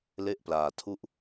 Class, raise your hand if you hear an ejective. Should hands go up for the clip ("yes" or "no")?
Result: no